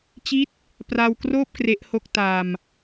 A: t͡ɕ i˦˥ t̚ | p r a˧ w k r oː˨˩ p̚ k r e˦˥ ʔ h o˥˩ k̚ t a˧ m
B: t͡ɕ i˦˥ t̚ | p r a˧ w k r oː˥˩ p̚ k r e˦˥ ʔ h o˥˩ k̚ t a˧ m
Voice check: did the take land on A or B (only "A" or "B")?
B